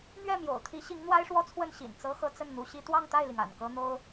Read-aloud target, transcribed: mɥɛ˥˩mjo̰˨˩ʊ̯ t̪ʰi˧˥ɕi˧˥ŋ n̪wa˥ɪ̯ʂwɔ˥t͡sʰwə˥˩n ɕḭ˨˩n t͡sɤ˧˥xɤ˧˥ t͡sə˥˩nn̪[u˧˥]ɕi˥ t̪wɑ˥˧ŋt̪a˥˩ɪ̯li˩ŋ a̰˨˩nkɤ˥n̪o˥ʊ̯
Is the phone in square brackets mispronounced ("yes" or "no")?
no